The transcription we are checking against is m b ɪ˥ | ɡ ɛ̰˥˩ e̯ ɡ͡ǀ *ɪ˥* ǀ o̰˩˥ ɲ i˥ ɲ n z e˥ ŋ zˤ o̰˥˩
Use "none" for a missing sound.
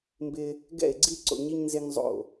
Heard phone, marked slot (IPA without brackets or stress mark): i˥